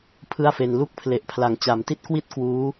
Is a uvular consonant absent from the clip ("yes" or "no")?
yes